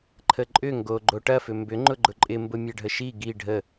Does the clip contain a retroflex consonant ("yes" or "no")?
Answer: yes